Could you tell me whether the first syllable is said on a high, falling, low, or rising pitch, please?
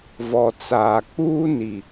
low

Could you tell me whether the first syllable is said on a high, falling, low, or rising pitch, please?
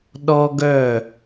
high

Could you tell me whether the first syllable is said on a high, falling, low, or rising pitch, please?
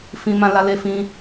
high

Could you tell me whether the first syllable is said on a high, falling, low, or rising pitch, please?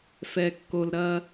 low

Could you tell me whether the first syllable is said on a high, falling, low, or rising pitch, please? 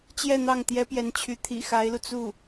falling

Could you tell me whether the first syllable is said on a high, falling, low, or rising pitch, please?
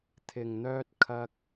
low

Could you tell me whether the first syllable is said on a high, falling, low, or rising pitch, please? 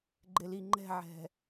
low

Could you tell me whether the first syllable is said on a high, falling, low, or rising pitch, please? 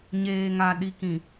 low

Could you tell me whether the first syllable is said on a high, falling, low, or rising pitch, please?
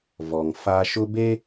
low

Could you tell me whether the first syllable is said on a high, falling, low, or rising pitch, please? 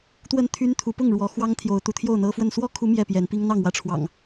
falling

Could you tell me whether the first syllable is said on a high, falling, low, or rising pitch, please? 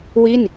falling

